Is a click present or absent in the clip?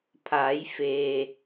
absent